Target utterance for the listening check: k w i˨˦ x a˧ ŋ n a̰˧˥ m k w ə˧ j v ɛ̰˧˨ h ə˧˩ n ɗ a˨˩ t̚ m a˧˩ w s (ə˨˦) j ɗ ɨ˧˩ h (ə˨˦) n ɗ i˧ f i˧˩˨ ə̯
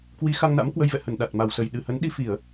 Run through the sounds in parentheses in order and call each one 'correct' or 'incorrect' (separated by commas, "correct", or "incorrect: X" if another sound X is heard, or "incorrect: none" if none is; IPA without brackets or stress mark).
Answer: incorrect: ə˨˩, correct